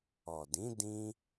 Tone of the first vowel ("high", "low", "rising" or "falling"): low